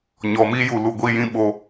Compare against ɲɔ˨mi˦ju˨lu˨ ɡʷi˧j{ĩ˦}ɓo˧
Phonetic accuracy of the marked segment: correct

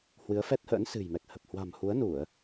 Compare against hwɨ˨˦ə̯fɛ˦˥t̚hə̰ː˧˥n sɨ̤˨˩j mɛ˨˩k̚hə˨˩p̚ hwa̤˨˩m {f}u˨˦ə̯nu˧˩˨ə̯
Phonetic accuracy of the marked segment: incorrect: h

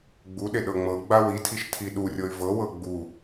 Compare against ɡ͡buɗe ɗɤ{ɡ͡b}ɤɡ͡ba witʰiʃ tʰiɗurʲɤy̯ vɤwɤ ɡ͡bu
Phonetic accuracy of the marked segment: incorrect: ŋ͡m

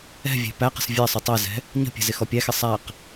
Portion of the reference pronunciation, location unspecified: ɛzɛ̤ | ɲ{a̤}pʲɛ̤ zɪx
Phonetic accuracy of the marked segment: incorrect: ə̤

